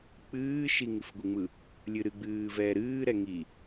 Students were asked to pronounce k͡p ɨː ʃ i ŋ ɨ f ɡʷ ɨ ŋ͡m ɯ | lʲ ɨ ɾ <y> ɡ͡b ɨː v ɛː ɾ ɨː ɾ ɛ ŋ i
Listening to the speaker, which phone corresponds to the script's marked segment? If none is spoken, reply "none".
ɨ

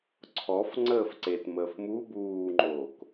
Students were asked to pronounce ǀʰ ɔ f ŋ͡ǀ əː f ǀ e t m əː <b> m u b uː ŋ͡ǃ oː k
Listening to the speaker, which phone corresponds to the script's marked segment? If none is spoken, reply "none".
f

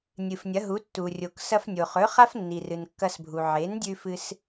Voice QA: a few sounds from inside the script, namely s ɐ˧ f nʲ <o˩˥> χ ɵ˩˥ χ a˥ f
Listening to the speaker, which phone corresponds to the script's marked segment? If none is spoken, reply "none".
o˩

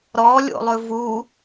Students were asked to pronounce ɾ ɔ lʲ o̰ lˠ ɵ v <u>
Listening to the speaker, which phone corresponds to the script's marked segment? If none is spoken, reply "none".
u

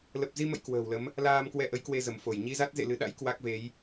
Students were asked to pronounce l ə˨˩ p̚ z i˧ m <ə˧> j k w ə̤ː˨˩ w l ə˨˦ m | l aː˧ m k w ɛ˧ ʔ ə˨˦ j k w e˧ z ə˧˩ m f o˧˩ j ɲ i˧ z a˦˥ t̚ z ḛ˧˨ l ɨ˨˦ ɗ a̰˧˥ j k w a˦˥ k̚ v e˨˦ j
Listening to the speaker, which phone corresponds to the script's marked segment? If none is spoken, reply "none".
ə̰˧˨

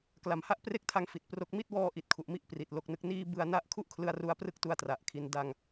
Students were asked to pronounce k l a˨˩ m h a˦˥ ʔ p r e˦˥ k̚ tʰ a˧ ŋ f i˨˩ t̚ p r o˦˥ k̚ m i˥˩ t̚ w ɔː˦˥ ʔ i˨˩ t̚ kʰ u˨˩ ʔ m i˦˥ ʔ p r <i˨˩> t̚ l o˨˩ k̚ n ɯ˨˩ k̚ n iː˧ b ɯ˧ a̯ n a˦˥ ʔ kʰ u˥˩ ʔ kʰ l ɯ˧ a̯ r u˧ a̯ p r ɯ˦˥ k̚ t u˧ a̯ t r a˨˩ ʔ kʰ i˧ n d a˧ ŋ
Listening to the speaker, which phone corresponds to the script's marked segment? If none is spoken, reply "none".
i˨˩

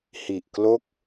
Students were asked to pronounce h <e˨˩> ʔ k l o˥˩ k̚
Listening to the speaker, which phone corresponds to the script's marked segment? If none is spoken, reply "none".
i˨˩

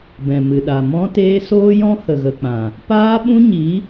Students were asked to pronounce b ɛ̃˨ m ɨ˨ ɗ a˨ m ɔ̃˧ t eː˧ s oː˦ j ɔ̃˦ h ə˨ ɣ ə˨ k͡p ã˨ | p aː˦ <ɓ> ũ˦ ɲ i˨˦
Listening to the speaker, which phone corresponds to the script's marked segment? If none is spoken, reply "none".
ɓ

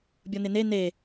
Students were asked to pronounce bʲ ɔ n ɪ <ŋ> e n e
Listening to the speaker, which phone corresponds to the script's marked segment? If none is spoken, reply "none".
n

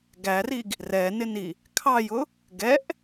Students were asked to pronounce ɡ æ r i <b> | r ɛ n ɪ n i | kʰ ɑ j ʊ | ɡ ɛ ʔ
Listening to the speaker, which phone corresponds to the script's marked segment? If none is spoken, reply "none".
ɡ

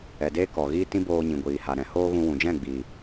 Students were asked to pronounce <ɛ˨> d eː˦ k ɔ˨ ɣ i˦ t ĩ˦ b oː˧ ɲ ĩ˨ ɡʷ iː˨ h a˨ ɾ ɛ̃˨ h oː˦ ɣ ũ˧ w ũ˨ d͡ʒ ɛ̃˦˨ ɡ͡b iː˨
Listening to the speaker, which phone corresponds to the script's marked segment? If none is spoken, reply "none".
ɛ˨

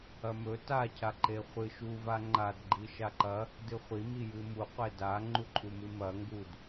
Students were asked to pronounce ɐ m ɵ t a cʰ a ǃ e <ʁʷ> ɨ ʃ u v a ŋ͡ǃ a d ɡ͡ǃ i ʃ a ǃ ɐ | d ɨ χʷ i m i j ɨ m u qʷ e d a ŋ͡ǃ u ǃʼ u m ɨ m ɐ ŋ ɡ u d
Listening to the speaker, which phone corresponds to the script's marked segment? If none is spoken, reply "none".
χʷ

